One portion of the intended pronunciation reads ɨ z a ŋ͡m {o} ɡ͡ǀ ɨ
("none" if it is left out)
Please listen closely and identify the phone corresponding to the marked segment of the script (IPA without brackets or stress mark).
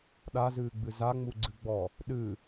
u